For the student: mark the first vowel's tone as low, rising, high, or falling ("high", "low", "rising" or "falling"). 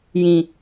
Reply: low